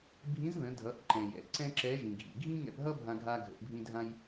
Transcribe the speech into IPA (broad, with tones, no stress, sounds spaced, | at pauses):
bʱ ĩ˧˥ z ð ə̃˩˧ dʱ ʌ˩˧ ʔ ǃ ɛ̃˩ j ɛ̰˩ ǀ ɛ̃˥ ǁ ɛ˧˥ ʒ ĩ˩ ɡʱ ḭ˩ ɡʱ ĩ˥ ŋ ɛ̰˧ p ɦ ʌ˥ bʱ ã˧ ɡʱ a˧ ɡʱ ə̰˩˧ ʔ bʱ ĩ˧ dʱ ã˥ j